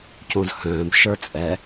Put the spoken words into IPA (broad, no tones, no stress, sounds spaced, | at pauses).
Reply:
c õ z h œ̃ː b ʃ ə˞ t͡sʼ ɛ